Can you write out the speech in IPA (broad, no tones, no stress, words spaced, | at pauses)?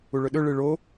uɭɵɗɵ ɭɨɭo